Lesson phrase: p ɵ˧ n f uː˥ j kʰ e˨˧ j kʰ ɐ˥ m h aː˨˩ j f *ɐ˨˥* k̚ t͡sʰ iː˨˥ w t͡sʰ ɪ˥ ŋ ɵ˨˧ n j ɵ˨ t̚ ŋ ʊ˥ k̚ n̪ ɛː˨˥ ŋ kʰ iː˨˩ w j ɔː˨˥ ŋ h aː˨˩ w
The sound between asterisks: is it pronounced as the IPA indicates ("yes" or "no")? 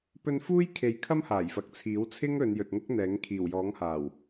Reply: yes